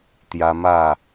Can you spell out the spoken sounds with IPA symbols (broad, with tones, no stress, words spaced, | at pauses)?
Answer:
t̪ja˧ ma˥˧